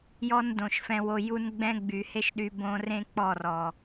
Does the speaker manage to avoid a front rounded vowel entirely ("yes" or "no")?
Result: no